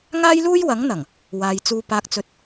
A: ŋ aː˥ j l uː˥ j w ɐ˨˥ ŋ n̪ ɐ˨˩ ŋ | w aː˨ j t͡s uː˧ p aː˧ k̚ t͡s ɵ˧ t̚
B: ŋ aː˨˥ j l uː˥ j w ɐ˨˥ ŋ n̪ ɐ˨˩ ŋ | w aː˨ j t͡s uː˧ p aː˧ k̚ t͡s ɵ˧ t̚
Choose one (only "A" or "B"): A